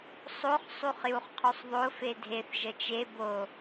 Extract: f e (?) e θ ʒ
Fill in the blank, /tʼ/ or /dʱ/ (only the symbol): dʱ